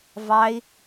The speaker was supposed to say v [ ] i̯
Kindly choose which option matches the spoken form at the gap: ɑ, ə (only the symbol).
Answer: ɑ